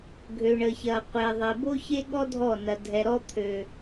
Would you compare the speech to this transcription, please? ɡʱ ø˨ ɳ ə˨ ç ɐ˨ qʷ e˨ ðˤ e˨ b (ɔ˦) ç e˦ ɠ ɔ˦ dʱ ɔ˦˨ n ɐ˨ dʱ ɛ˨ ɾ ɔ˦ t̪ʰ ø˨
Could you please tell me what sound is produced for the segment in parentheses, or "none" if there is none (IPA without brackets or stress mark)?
o˦